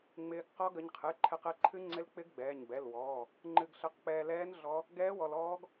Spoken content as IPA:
ŋ͡mɪː˧ɡqɔ˦˥ ɡə˧ɲqʰɨ˩˧˩ǃʰɛ˧q ɛ˩˧˩ǃʰɨ˦˥ ŋ͡ǀɪ˦˥l k͡pɪ˦˥ɡ ɡ͡bɛː˩˧˩ɲbɛ˩˧˩l wɔː˩˧˩ | ŋ͡ǃɨ˧ɡɬə˧qk͡pɛː˧ lɛː˦˥n ɮɔ˦˥ | ɡɛː˦˥wɔ˧l ɔː˦˥ɡ

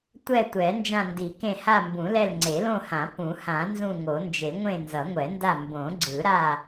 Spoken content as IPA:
tʷɛ˦˨tʷɛ˨˩˦ nd͡ʒã˦˨ndi˨˩˦kẽ˦˨ ha˦˨mbũ˨˩˦lɛ˦˨l ŋ͡ǀe˨˩˦lõ˦˨hã˨˩˦ pũ˨˩˦hã˨˩˦ nzũ˦˨ŋo˨˩˦nd͡ʒe˨˩˦ ŋʷẽ˦˨nzʌ˨˩˦ŋʷɛ˨˩˦nda˦˨ mbõ˨˩˦ɡ͡ǀɯ˨˩˦ɾa˦˨

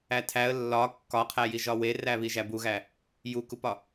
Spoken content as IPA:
ætʰæə̯ lːɒ kːɒqʰæji ʒɒweræ βiʒæbuɣæ | jukupɒ

